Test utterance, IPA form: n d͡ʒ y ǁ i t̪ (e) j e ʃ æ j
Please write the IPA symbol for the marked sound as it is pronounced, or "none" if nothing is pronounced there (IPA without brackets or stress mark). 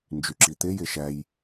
e